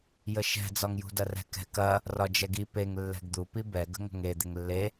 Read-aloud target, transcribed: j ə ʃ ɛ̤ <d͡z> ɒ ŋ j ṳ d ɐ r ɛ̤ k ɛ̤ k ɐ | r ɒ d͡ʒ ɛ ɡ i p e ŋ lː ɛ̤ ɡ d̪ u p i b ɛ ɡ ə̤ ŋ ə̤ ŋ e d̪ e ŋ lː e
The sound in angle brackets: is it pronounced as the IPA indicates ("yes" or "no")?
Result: yes